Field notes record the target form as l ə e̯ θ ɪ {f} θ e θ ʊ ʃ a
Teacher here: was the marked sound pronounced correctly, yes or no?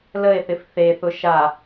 yes